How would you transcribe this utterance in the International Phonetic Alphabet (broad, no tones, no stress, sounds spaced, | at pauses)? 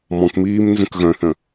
m ɔ̃ k m iː m n z ə̃ k ɣ œ̃ θ ə̃